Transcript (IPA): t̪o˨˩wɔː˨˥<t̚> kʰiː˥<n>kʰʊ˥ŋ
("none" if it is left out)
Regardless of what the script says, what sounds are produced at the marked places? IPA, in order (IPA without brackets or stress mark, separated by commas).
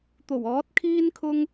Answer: t̚, n